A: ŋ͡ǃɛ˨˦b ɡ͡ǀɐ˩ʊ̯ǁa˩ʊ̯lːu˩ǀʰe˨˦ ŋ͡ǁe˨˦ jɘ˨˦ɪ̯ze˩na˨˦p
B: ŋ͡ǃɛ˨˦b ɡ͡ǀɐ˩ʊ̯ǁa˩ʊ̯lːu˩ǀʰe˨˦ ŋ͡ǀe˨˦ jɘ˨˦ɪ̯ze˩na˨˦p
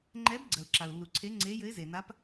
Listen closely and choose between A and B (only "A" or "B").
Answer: B